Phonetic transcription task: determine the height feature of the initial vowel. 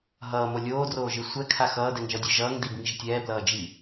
mid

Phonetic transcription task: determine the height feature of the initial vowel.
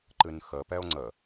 high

